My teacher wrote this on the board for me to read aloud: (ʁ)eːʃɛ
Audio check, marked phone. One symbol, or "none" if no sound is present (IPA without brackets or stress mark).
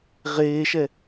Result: ʁ